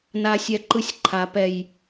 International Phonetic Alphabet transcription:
na˦sʲɛ˦ǃɯ˦sʲ ǃʰa˨pɛ˨j

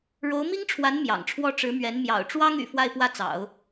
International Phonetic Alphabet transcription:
ɻo˧˥ʊ̯mi˥ŋʈ͡ʂʰwa˧˥n mjɑ̰˨˩ŋʈ͡ʂʰwɔ˥ ʈ͡ʂɻ̩˧˥mɥɛ˧˥n mjɑ̰˨˩ʊ̯ ʈ͡ʂwɑ˥ŋy̰˨˩ fwa˥˧ɪ̯pwä˥˩t͡sɑ̰˨˩˦ʊ̯

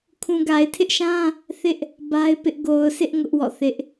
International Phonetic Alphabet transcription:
kʰũ˨ɡa˨ɪ̯tʰɪ˦ʔʃã˦ | θɪ˦ʔ | ba˦ɪ̯pɪ˦ʔ ɡo˨ʊ̯sʰɪ˦ʔ ŋʊ˦ʔwɔ̰˦˨θɪ˦ʔ

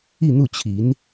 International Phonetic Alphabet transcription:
i˥˧n̪u˥˩t͡ɕʰi˧˥n

